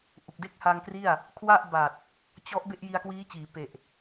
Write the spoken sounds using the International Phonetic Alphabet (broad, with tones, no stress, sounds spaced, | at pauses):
ʔ u˨˩ k̚ d e˥˩ k̚ h a˧ ŋ k r i˥˩ a̯ | kʰ w a˥˩ ʔ b a˨˩ t̚ | t͡ɕ ɔ˦˥ ʔ b e˥˩ ʔ j i˧ a̯ k w iː˦˥ t͡ɕ iː˩˦ p e˨˩ ʔ